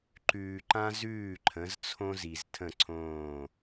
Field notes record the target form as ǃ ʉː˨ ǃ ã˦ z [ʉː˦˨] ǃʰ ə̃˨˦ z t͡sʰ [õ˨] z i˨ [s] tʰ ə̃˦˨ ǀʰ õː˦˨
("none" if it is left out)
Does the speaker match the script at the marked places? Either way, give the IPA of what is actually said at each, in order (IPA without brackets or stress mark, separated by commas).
ʉː˦˨, õ˦, z